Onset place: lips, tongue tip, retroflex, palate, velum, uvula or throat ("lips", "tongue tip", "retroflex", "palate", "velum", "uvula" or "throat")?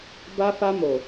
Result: lips